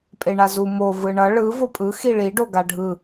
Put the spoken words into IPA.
pʼ e ɳ a z u m o v ɯ ɳ ʌ ɭ ɯ v o pʼ ɯ x i ɭ i ɖ o ɡ a ɖʱ ɯ

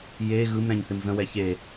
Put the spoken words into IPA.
j e ɣ ɯ m ɾ ɛ̃ ɲ θ ɪ m z ə̃ w ɛ ç e

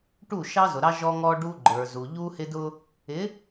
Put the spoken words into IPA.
ʈ u˦˨ ʃ ɑ˦ z ʊ˨ ɾ ɑ˦ ʒ ɔ˦ ŋ ɔ˦ ɖ u˦ ɡ͡ǃ ə˞˨ z u˨ ʎ u˦ h ɪ˦ d ʊ˦ | ɪ˨˦

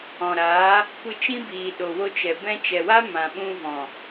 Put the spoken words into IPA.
ɔ̃˨ ɾ aː˨˦ | kʷ ɨ˧ t͡ʃ ĩ˦ b iː˨ ɗ o˨ w o˧ t͡ʃ ɛ˨ b ɛ̃˧ t͡ʃ ɛ˨ w a˦ m ã˨ ɓ ũ˧ v ɔ̃˨

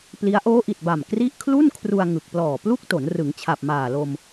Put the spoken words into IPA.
p l i˦˥ a̯ ʔ oː˦˥ ʔ i˨˩ t̚ b a˨˩ m k r i˦˥ ʔ kʰ l u˥˩ n kʰ r u˧ a̯ ŋ ɯ˨˩ k̚ p l ɔː˨˩ p l u˥˩ k̚ t o˩˦ n r ɯ˩˦ ŋ t͡ɕʰ a˨˩ p̚ m aː˨˩ l o˧ m

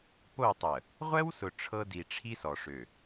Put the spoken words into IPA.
p o˦˨ tˤ ə˨ | ʁʷ ɛ˦ w s ʊ˨ ʈ͡ʂʰ ɤ˦ d i˨ ʈ͡ʂʰ i˦ s ɔ˨ ʂ ø˨

